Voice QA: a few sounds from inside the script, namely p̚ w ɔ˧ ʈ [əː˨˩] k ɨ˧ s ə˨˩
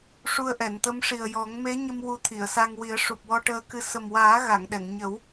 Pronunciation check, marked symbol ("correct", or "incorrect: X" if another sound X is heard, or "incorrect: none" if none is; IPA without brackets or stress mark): incorrect: əː˧